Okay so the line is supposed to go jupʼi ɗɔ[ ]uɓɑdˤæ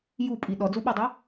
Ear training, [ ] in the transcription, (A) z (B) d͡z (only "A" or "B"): B